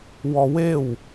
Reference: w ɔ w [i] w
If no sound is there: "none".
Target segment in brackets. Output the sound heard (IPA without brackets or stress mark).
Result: e